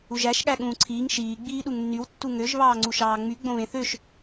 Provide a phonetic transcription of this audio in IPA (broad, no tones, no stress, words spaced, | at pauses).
uʒæʃ ɠæɠũːǀʰiːŋ ʃiː ɡ͡biːɗuŋnːyw tːuŋøʒ βɑːŋ͡ǀuʃɑːŋ͡my ɡ͡bõβẽθøʃ